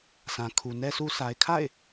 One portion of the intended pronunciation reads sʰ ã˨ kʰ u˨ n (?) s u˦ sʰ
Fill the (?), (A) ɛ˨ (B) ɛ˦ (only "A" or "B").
B